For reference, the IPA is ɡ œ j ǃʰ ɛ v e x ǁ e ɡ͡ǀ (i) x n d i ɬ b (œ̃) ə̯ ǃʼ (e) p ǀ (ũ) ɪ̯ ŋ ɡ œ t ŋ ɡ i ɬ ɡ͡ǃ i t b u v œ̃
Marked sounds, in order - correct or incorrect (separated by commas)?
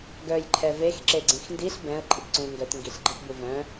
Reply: incorrect, incorrect, incorrect, correct